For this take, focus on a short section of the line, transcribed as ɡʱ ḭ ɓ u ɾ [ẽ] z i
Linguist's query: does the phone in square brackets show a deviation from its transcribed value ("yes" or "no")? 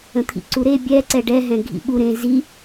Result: no